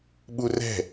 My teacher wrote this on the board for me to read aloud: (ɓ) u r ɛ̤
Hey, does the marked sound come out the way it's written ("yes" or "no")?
yes